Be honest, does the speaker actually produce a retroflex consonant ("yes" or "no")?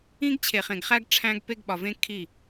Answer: yes